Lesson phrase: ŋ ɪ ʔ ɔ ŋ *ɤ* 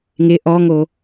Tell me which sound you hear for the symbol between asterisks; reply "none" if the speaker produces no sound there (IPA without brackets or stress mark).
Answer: o